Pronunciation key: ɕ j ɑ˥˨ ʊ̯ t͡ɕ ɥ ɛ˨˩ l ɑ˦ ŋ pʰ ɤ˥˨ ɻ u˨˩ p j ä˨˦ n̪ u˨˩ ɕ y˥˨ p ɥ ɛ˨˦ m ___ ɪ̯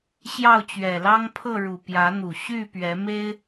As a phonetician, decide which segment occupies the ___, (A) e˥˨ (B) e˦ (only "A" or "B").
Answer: B